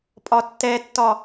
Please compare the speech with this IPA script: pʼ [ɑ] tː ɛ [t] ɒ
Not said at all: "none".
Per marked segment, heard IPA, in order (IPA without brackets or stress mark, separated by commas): ɒ, tː